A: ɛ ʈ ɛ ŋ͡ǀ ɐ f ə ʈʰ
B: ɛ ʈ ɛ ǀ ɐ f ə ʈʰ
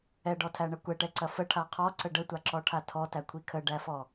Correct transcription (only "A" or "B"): B